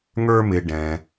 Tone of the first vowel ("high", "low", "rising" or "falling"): high